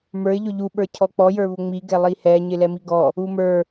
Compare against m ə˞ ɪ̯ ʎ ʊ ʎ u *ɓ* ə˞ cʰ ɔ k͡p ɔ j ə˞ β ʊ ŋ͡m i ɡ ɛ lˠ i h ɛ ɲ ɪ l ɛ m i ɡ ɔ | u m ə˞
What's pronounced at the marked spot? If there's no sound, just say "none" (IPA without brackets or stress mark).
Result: ɓ